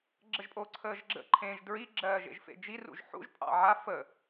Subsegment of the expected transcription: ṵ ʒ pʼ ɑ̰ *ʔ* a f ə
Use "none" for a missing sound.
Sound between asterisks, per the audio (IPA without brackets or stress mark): ʕ